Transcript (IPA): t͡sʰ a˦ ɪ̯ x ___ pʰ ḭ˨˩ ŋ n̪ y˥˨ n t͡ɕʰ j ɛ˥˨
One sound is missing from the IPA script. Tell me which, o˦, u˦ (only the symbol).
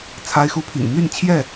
u˦